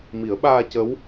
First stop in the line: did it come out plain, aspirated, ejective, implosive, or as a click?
implosive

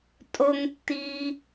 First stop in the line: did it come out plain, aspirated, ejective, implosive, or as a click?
ejective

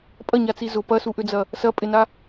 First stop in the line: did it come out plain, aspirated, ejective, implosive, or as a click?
ejective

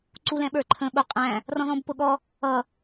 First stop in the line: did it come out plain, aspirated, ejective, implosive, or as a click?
click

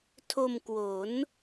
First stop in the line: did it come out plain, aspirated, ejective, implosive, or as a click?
aspirated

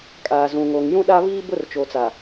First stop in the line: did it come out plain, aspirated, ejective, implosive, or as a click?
ejective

